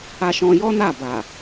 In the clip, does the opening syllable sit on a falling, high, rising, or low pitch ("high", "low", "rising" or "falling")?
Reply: high